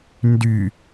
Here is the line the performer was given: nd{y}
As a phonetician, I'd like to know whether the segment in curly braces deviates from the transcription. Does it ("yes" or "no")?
no